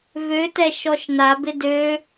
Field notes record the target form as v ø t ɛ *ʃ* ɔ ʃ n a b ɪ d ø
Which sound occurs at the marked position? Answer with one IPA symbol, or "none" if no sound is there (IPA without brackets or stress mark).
ʃ